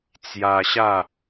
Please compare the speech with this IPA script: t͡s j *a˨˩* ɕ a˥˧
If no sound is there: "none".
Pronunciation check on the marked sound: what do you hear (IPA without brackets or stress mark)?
a˧